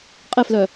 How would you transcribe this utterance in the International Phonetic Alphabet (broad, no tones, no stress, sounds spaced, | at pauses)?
qʼ ɪ f l œ